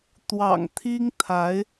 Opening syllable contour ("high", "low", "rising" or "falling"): low